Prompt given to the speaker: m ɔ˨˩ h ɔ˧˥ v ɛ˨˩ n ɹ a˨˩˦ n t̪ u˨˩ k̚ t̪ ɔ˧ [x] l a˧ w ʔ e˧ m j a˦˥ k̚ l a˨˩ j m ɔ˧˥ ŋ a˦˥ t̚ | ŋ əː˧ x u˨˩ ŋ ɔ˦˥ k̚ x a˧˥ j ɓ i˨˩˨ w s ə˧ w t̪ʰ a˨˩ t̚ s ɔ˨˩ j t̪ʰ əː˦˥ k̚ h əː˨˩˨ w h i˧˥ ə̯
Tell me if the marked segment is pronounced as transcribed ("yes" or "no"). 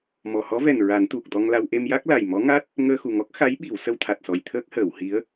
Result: no